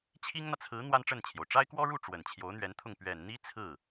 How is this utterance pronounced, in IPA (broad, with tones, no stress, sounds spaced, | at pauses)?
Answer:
t͡ɕʰ i˥ ŋ n̪ ä˨ t͡sʰ ɹ̩˧˥ n̪ w a˥ n ʈ͡ʂ ə˥˩ n t͡ɕʰ j o˩ ʊ̯ ʈ͡ʂ a˥ ɪ̯ k w ɔ˥ ɻ u˥˩ ʈ͡ʂ w ə˨˩ n t͡ɕʰ j o˧˥ ʊ̯ n̪ ɥ ɛ˧˥ n t̪ʰ ʊ˥˩ ŋ p ɥ ɛ˨˩ n n̪ i˥ t͡sʰ ɹ̩˥˩